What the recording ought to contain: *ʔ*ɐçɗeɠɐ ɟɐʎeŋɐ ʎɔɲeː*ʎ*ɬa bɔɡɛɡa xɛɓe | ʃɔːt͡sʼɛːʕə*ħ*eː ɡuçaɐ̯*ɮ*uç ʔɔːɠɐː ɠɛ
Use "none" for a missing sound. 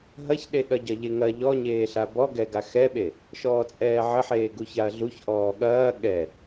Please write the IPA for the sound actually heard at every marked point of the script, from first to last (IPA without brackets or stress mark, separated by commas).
ɦ, none, ħ, ɮ